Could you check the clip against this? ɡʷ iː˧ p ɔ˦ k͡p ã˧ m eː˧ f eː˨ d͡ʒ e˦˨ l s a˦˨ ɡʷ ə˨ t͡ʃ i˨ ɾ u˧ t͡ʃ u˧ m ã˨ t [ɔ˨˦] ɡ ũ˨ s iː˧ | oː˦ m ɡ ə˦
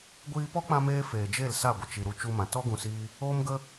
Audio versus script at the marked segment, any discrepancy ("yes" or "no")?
yes